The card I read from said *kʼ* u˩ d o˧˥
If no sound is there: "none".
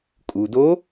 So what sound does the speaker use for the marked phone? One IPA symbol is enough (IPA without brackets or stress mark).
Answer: kʼ